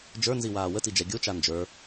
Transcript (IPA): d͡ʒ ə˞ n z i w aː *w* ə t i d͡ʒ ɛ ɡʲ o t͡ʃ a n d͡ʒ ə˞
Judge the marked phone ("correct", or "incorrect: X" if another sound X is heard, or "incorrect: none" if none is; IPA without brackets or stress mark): correct